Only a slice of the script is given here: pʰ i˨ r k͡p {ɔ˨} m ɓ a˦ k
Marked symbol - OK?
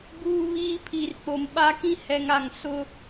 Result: no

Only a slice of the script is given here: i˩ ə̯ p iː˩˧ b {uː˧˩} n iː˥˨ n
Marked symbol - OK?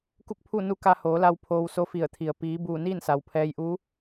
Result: yes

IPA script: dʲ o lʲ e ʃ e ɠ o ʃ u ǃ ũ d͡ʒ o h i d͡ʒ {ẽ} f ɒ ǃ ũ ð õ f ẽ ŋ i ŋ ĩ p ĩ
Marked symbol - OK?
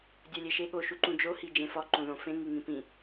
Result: yes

